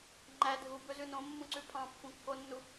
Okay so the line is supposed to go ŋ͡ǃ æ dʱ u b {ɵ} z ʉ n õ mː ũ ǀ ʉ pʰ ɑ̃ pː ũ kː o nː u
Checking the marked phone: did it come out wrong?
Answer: no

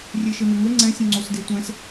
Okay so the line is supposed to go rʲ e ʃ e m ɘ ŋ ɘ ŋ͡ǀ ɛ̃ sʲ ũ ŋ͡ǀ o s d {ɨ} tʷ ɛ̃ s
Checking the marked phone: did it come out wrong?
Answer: yes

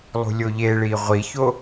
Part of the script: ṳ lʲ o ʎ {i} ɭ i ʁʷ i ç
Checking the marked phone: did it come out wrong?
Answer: yes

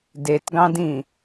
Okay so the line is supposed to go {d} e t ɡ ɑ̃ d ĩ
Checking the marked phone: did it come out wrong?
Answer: no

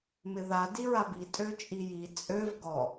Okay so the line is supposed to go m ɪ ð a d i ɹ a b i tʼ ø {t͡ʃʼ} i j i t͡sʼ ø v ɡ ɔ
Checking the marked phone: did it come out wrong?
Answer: no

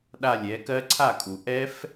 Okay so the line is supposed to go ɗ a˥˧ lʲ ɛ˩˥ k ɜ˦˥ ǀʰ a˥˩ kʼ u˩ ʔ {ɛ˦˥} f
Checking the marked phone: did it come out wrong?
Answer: no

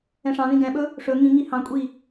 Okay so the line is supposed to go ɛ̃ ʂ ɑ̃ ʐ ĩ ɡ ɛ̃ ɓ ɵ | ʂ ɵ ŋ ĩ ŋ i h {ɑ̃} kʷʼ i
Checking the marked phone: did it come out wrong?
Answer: no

